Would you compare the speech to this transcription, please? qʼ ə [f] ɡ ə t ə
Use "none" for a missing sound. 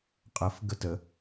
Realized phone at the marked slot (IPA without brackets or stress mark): f